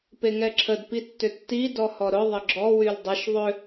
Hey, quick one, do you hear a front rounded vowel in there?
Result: yes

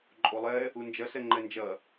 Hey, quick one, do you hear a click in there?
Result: yes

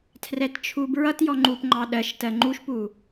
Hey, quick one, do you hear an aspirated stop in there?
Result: yes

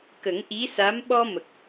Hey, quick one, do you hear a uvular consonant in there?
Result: no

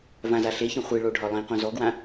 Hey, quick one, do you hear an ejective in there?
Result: no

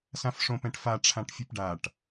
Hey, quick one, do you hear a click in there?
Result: no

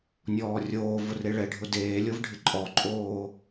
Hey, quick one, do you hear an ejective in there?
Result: yes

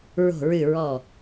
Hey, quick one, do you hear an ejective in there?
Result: no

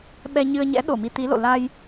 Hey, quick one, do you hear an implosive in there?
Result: yes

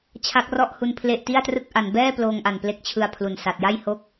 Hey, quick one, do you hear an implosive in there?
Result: no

